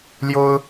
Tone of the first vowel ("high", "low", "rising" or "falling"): high